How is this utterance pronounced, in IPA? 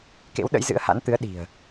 k ḛ˧˥ w ɗ ə̰˧˥ j z ɨ̰˧˥ ə̯ h a̰˧˥ n t̪ ɨ˨˦ ə̯ ɗ i̤˨˩ ə̯

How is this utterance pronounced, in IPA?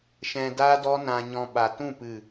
ʃ ɛ̃˧ d a˦ d ɔ˦ n ã˧ ɲ ɔ̃˧ ɓ a˨ t ũ˦˨ p ɨ˦˨

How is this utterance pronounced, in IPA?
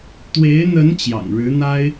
t̪ w e˧˥ ɪ̯ n̪ ə˧˥ n t͡ɕ j ɑ̰˨˩ ŋ ɻ ɻ̩˧˥ n̪ a˥ ɪ̯

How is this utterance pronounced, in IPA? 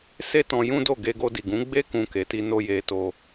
s e˦ t ɔ̃˧ j ũ˦ d o˦˨ ɡ e˧ ɡ o˧ d i˨ ɡ ũ˨˦ ɡ͡b e˦ k ũ˧ k e˨ t i˧ n o˧ j e˧ t o˧

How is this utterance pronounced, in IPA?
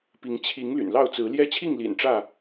p i˨˦ ŋ t͡ɕʰ i˨˦ ŋ l y̰˨˩ n l ɑ˥˨ ʊ̯ t͡s ɹ̩˨˦ l j ɛ˦ t͡ɕʰ i˥˨ ŋ l ḭ˨˩ n ʈ͡ʂ ä˥˨

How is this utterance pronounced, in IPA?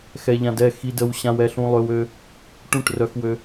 x ɛ˧ ʎ ã˧ d ɛ˥˩ x i˧ d ə˧ w ɕ ã˧ w ɛ˧ ɬ ũ˧ lˠ ø˧ w ø˧ | ʈ ũ˥˩ ʈ r œ˧ x w ø˧

